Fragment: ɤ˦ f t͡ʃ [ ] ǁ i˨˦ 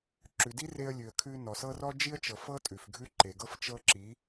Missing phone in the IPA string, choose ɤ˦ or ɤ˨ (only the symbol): ɤ˦